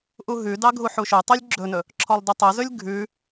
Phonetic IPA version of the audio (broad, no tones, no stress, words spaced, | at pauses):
ʔuɦʉdɑ ɡʱuħuʃøtˤylʲ ɡ͡ǁɵnɵ | ǁʰɔlˠdʉtˤɵzɵlʲ ɡʱʉ